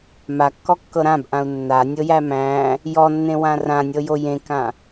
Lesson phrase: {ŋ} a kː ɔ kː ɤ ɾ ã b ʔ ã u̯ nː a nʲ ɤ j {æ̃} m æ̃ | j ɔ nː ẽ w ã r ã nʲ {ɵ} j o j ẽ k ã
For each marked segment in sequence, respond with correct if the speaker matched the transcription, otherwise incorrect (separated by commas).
incorrect, incorrect, incorrect